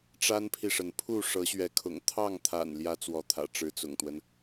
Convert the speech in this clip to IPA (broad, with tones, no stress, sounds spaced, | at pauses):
ʈ͡ʂ a˦ n pʰ i˨ ʂ ə˩ n pʰ u˥˨ ʂ ɤ˨˦ ɕ ɥ ɛ˨˦ kʰ ʊ̰˨˩ ŋ t̪ʰ ɑ˥˨ ŋ t̪ʰ a̰˨˩ n l j ä˦ t͡s w ɔ˨˦ t̪ʰ ä̰˨˩ ʈ͡ʂ ɻ̩˨˦ t͡s ʊ̰˨˩ ŋ t̪ w ə˦ n